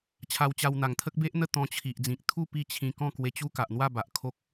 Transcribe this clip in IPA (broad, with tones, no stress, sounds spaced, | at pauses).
t͡ɕʰ a˧ w t͡ɕ a˧ w n̪ a˨˩ ŋ t̪ʰ ə˦ k̚ b e˦ ʔ n̪ ə˥˧ t̪ ɔ̃˧ t͡ɕʰ i˨ ʔ d͡z ĩ˨ k̚ t̪ʰ u˥˧ p i˥˧ t͡ɕʰ ĩ˧ k ɔ̃˥˧ k w e˧ t͡ɕ u˦ k a˨ ʔ n̪ w a˥˧ b a˨ ʔ kʰ o˦ k̚